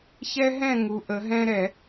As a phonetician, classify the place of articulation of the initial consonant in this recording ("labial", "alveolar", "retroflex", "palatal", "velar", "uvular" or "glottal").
palatal